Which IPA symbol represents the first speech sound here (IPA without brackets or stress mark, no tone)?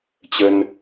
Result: t͡ɕ